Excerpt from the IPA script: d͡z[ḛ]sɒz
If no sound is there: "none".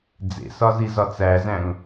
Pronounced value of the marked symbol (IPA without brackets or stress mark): ḛ